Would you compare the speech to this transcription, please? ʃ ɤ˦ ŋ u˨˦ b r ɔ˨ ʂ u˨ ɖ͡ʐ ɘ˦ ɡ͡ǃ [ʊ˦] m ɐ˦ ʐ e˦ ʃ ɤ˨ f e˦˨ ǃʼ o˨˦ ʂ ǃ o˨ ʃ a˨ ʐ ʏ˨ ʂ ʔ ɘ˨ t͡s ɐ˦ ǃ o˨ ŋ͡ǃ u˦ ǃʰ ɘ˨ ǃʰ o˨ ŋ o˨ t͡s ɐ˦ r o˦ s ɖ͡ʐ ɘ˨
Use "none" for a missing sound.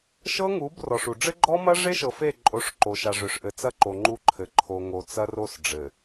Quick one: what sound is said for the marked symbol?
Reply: ɔ˦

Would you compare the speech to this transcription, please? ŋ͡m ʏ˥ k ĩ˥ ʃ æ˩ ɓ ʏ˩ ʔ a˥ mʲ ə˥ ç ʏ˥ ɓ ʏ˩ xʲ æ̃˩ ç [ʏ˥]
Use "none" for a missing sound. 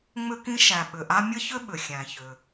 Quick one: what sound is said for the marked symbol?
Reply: ʏ˩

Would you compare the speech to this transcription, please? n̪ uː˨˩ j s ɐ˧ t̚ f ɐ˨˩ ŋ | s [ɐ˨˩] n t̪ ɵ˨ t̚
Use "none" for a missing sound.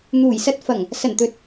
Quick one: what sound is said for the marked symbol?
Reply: ɐ˨˩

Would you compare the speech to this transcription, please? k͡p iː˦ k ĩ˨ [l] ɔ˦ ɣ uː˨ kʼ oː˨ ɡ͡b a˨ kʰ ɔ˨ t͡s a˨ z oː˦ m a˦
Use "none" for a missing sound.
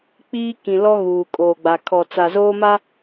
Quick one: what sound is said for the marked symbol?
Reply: l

